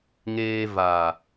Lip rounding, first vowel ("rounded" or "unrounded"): unrounded